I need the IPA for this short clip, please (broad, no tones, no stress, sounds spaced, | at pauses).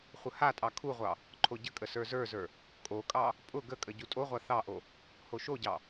χʷ ə h a tʼ ɑ kʰ u ʁʷ ɑ | ǃʰ o ɟ ə kʼ ə s ə˞ z ə˞ z ə˞ | kʼ o kʼ ɑ | pʼ ʊ ɡ ə kʼ ə ɟ u tʼ o ʁʷ a θ ɑ ʔ o | h o ʃ o ɟ ɑ